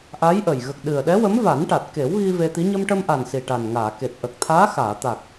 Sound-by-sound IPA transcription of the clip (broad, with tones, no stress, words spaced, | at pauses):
ʔa˧˥jʔə˨˩j ɣə˨˩k̚ ɗɨ˨˩ə̯ɗɛ˧˥ wə˧˥mva˨˩˦nʈa˨˩t̚ ke˨˩˦wɣi˧ ve˧t̪i˧˥ ɲə˧mʈə˧mʔa˨˩n si˨˩ʈa˨˩nŋaː˨˩˨ke˨˩t̚ ʔə˨˩k̚t̪ʰaː˧˥xaː˨˩˨ t̪a˨˩k̚